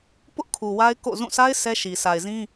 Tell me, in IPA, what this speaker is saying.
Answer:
pʊ˦ʔkʰu˨ wa˦ɪ̯ ko̰˦˨zũ˦˨ sa˦ɪ̯ sɛ˦ʃi˨ sʰa˨ɪ̯zĩ˦

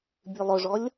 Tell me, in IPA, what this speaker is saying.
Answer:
bʲʉlˠɵʐɔlʲ

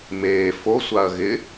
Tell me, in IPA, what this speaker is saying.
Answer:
meː fo sʷaɐ̯ɣɪ

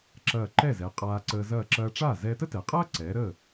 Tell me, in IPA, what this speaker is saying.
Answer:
ǁɐː˧˩ǃɛ˥˩zɛ˩˧ qʼaː˧ǀəː˧ zɐː˧˩ǁɐː˧ʈ͡ʂaː˥˩ zɛː˧tə˥tɛ˩˧qʼɐː˥ ǀɛː˩˧ ɾəː˥˩

